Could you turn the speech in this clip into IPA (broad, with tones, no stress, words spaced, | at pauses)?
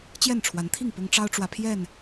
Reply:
t͡ɕjɛ˥˨nʈ͡ʂʰwa˨˦nt̪ʰi˥˨ŋ pʊ˦ŋ ʈ͡ʂɑ˦ʊ̯ʈ͡ʂwä˨ pʰjɛ˥˨n